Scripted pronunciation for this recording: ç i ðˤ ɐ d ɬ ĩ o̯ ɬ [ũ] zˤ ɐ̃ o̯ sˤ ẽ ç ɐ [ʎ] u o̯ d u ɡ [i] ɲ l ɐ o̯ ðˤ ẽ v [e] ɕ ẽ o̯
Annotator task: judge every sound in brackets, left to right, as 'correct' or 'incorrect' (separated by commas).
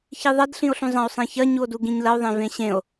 correct, incorrect, incorrect, incorrect